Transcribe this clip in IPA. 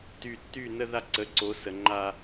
ty˨tːy˦˨nə˦ ða˦ǀə˨˦ǀo˨˦ sə˨ŋ͡ǃa˦

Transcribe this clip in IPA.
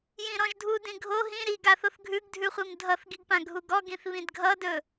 jĩɾɔ̃ʒdʱu dĩɡʱo ɦĩ ɾiɡaθoθ ɡʱʉɡdʱʉχʷim dʱʌθɡiɡpã ɡʱuɡɔɡĩθ βĩdɡʱʌdɵ

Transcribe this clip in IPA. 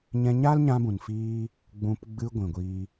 ɲɛ̃˧ɲaː˦lɲã˧bũ˨n fiː˦ | ɡ͡bũ˧p ɡ͡bɨ˧ ɡʷĩ˨ɡʷiː˧

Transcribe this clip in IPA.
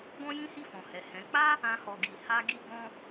ɡɔ̃˦jĩ˦hi˦˨ fɔ̃˨hɛ˨hɛ̃˨˦ k͡pa˦ | ã˦hɔ˧ɡi˧ ha˦ɡi˦ ɡɔ̃˦

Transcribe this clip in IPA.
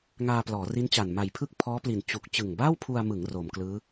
ŋaː˧plɔː˩˦ri˦˥nt͡ɕa˨˩n ma˨˩jpʰɯ˥˩k̚pʰɔː˦˥pli˨˩n t͡ɕu˨˩k̚ t͡ɕɯ˨˩ŋbaː˥˩wpʰu˧a̯mɯ˩˦ŋ roː˩˦m klɯː˦˥

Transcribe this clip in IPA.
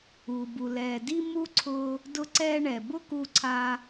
uː˩bu˩lɛː˩ di˧ mu˧ ǀʰʊ˧ | dʊ˧ǀɛː˧ɳɛ˩ bʊ˥ku˧ǀʰa˧

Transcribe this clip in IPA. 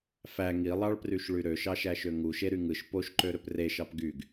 fæ ŋilˠɑɭpryʃɭy ɾøʃɑʃæʃø ŋuʃeɾy ŋɯʃ poʃǃøɾøp reʃɑp ɡyɡ

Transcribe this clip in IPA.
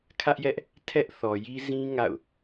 kʰä˦ʔjɛ˦ʔ | tʰɛ˦ʔθɔ˨ji˦ zĩ˦ ŋa̰˦˨ʊ̯

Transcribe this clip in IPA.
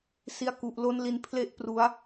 si˧a̯ku˨˩ʔ lo˦˥nli˧n pʰle˥˩ʔpru˦˥a̯

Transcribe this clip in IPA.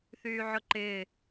θyːʕʊǃɪː

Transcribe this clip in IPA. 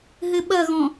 ɦɘɓɐɣɔ̃

